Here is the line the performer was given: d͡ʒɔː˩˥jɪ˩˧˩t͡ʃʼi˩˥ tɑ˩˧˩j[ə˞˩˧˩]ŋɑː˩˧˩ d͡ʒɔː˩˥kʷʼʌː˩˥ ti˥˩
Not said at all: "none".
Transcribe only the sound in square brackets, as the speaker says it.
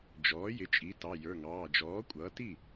ə˞˩˧˩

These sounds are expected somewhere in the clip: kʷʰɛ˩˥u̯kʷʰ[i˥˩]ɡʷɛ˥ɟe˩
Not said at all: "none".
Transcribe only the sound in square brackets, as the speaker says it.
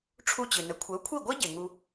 i˥˩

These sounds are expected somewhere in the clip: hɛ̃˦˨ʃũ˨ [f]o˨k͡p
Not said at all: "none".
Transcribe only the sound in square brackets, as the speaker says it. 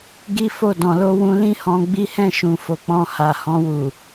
f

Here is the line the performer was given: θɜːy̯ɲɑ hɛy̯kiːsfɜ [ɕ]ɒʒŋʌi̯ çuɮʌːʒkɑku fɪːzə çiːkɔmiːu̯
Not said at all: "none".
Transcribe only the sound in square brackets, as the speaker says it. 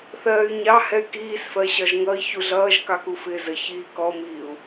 ɕ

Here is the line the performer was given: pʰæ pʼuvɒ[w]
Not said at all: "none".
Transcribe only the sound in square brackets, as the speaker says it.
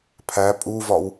w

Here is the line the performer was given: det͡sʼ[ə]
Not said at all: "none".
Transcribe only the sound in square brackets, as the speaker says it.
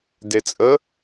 ə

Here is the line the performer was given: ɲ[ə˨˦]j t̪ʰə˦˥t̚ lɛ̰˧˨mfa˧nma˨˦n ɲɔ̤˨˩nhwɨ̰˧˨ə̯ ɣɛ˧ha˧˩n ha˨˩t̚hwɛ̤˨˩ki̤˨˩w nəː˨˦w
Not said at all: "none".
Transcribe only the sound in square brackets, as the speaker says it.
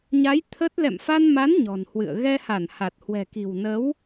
a˨˦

